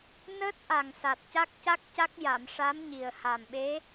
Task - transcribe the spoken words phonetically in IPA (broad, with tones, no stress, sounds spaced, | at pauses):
n əː˦˥ t̚ ʔ a˨˩ ŋ s a˨˩ t̚ c a˦˥ k̚ c a˦˥ k̚ c a˦˥ k̚ j a˨˩˨ m ʂ a˧˥ m ɲ i˨˩ ə̯ h a˨˩ m ɓ e˧˥